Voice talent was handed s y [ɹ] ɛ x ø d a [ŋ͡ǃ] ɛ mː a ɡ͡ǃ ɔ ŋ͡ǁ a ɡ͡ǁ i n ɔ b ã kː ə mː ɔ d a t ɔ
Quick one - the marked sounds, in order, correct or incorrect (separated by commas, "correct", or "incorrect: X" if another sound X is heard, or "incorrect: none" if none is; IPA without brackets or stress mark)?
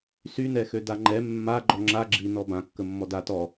incorrect: n, correct